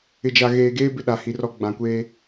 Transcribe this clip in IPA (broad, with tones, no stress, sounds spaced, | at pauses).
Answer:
ɪ˨ d͡ʒ a˨ ɣ eː˨ ɡ eː˦ b ɪ˦ ɗ a˨ h i˨ r ɔ˦ ɡ͡b ã˨ kʷ eː˦